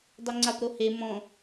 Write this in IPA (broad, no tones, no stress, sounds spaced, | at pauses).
dˤ ʊ ŋ͡ǀ a p ɾ o h e m ɔ̃